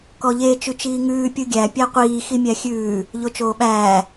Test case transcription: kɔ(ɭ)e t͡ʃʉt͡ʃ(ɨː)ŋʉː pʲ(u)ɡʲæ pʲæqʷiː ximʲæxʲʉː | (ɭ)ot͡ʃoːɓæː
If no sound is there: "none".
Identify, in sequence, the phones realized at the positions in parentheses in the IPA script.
ʎ, iː, ɯ, ʎ

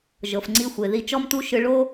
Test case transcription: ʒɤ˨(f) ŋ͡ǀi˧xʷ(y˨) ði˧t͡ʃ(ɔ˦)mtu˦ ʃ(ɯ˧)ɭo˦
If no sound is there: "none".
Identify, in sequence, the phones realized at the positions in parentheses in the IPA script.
f, e˨, ɔ˦, ɯ˧

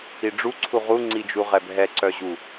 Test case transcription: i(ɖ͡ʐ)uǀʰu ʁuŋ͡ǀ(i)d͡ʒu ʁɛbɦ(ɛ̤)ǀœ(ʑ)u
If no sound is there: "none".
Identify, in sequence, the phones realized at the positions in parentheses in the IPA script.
ɖ͡ʐ, i, ɛ, ʑ

